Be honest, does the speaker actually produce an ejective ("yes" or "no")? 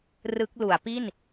no